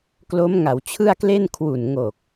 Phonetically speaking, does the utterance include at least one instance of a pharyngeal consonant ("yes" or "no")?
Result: no